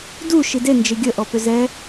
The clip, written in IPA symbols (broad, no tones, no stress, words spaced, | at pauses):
du ʃide nd͡ʒɪɡʲə ʔɔpʏzɛ